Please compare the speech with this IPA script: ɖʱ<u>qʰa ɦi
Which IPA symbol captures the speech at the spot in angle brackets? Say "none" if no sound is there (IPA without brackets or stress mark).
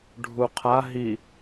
u